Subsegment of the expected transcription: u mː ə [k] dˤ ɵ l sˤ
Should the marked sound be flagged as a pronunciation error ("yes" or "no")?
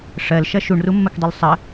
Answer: no